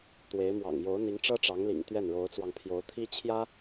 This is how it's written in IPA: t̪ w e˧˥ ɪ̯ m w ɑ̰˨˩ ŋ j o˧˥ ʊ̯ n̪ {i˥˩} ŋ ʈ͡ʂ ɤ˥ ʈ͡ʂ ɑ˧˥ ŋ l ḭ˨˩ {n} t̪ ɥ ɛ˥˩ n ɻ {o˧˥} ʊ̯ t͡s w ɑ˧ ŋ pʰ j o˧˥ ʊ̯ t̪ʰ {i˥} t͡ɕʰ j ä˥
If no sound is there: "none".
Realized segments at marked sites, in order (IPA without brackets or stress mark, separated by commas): i˧˥, ŋ, o˧˥, i˥